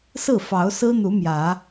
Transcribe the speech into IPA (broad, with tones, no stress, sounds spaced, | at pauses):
s ɹ̩˥˨ f ɑ˨˦ ʊ̯ s ɹ̩˦ n̪ u˨˦ m j ä˨˦